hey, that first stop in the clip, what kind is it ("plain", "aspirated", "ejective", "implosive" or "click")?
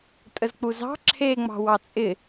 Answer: ejective